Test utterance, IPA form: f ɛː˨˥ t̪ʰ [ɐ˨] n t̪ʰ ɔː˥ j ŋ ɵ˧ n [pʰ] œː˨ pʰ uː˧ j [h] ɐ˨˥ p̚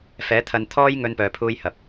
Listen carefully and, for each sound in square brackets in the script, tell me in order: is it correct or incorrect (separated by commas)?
incorrect, incorrect, correct